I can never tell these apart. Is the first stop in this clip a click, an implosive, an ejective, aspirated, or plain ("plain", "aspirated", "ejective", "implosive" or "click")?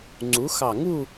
click